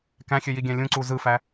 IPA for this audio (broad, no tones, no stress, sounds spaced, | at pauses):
k æ̃ xʲ ø j i ɡʲ æ̃ lʲ ũ ǀ u z ɯ f æ